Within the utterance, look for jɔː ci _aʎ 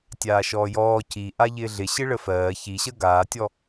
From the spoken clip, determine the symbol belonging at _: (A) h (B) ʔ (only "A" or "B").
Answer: B